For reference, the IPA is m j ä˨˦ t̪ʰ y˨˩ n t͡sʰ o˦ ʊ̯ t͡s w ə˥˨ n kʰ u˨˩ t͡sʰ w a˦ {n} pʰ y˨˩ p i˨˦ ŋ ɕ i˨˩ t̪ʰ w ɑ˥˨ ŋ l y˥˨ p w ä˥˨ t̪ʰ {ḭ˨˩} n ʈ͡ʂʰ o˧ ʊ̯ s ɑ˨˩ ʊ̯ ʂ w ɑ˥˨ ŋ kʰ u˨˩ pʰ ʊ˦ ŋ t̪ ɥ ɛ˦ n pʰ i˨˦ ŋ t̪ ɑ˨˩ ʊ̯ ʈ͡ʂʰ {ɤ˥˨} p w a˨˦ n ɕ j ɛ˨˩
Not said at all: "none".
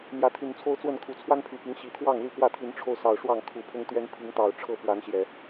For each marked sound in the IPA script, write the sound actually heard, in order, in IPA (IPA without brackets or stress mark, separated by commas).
n, i˨˦, ɤ˥˨